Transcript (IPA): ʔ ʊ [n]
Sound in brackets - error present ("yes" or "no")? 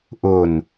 no